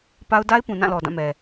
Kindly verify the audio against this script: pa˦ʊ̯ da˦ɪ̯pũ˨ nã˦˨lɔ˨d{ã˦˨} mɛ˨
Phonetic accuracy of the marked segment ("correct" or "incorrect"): correct